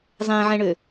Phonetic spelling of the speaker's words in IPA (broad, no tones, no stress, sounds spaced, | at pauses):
zˤ ɛ̃ ʕ ɛ̃ ɳ ø